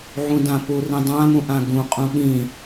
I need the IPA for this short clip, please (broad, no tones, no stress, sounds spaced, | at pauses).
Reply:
ʕ ũ d ã p u r ĩ dˤ ã m ũ ʔ ã ɡ ũ qʼ ũ ɠ ĩ